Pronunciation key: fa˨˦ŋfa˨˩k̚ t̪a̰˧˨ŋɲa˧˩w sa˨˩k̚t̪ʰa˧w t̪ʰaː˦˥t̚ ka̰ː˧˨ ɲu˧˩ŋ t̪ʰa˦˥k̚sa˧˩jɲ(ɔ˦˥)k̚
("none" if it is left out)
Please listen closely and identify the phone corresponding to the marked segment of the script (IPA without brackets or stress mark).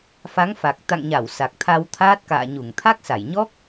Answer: ɔ˦˥